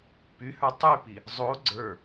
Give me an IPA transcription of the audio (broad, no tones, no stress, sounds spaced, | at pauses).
p y h ə˞ tˤ y p i | zˤ o ɡ͡ǀ ə˞